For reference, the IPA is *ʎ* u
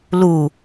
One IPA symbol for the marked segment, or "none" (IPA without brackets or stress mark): l